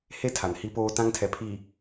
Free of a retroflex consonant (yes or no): yes